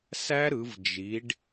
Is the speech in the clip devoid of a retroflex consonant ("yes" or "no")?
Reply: no